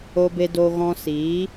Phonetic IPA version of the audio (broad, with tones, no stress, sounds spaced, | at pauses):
o˧ b e˧ d o˧ ɣ ɔ̃˧ s iː˨˦